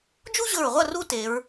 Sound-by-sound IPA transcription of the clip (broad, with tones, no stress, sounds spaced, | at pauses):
d͡ʒ u˥ ʑ ɵ˧˩ ɹ ʁʷ ɐ˥˨ r u˥ t e˩˧ ɹ